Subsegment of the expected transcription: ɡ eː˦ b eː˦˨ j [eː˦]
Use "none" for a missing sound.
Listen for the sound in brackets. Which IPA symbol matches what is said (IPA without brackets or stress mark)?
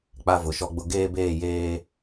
eː˦